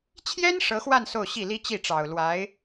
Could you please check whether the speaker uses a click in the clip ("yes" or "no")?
no